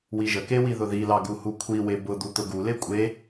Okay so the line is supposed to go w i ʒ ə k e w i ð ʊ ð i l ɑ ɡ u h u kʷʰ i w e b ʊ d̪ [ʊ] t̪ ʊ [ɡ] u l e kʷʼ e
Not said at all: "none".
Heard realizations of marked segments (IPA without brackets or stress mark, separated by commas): u, ɡ